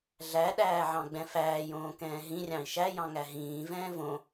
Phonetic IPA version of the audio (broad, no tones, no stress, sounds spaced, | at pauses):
ɮ æ ɗ æː ʕ ɑ̃ ɡ͡b ɛ̃ f æː j õː k ɛ̃ː ɦ ĩ rʲ ɑ̃ i̯ ʃ æ j ɑ̃ ŋ æ ɦ ĩː v ɛ̃ː v õ